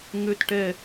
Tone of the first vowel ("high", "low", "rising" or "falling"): falling